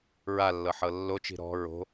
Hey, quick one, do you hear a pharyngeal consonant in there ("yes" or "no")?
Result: yes